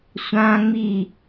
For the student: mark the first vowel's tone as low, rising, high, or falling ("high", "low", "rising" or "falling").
high